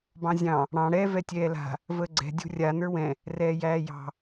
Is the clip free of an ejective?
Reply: yes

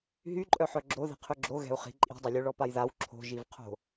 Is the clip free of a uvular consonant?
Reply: no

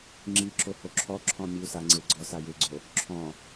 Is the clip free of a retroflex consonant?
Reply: yes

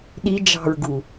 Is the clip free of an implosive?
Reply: no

